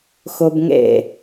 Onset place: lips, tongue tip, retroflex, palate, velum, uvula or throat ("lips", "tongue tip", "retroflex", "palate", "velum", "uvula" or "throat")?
velum